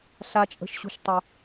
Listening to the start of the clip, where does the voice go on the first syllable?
high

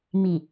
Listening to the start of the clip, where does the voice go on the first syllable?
low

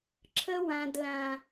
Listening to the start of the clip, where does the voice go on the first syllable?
high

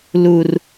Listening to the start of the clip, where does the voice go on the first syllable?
high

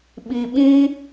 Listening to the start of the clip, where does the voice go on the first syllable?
low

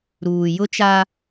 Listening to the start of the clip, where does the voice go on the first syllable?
low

